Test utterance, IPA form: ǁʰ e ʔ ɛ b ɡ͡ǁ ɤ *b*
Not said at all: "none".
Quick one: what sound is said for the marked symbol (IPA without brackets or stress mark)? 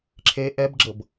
b